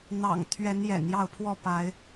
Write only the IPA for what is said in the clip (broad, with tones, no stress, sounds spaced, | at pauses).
n̪ ɑ̰˨˩ ŋ t̪ʰ ɥ ɛ˨˦ n j ɛ̰˨˩ n j ɑ˥˨ ʊ̯ pʰ w ɔ˥˨ p a˨˦ ɪ̯